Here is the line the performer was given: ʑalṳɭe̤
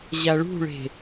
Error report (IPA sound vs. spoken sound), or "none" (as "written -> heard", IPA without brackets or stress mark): l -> ɭ